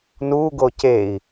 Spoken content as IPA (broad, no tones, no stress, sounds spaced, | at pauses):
n u ɡ o c e i̯